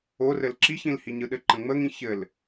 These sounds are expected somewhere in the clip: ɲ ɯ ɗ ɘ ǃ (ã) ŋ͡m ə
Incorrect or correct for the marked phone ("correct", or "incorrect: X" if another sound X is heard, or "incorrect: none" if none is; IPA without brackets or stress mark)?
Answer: incorrect: ə̃